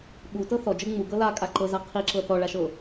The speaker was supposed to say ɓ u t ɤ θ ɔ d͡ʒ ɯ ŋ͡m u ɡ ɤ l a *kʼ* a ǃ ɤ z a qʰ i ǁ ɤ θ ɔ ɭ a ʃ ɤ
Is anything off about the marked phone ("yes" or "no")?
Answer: no